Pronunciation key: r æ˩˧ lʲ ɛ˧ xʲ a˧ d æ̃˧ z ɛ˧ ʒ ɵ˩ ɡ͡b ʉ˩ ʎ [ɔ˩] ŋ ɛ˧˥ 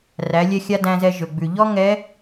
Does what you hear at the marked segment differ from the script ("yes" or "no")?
yes